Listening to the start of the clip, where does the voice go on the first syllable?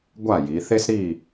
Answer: falling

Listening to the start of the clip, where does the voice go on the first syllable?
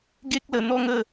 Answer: high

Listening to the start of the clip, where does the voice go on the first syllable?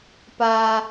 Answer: high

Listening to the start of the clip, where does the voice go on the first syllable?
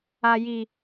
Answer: low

